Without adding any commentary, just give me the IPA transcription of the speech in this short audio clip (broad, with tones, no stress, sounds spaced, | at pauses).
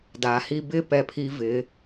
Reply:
d a˩˧ h i˧ b ɪ˥˧ p ɛ˧˩ pʰ i˧ v ɪ˩˧